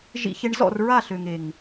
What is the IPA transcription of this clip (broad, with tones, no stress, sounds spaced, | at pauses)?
ʒ ḭ˧ ç e˧ ɳ z ɔ̰˦˨ r ɹ a˦˨ ɬ ø˨ ŋ e˨ ŋ